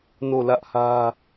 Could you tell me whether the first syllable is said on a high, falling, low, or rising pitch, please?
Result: falling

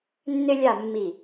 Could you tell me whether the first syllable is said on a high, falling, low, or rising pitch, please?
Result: high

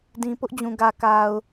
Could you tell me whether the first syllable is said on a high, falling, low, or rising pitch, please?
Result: low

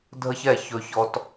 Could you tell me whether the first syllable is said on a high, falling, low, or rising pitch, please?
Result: high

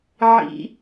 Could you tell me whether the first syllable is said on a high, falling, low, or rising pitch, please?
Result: high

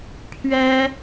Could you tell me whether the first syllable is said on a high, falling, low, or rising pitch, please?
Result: high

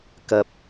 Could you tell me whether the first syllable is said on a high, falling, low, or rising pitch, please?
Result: high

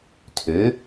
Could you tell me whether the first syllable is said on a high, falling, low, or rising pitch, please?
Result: rising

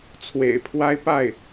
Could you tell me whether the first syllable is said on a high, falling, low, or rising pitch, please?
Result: low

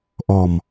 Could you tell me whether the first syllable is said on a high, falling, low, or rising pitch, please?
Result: low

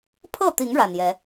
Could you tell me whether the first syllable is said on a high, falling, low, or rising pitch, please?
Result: falling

